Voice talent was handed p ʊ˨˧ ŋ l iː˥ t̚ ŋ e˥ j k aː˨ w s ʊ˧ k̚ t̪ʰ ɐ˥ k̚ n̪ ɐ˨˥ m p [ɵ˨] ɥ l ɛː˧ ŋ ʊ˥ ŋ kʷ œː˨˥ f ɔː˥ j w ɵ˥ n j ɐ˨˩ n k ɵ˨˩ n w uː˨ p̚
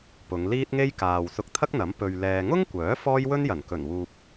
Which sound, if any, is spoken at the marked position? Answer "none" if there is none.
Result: ɵ˨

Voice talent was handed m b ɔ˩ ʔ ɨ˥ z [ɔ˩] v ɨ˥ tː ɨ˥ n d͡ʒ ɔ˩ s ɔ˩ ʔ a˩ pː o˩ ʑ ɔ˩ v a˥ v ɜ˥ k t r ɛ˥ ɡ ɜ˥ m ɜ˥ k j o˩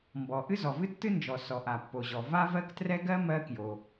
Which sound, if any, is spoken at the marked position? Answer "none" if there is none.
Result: ɔ˩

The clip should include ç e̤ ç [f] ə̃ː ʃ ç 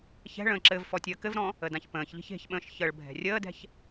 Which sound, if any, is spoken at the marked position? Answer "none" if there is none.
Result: ɓ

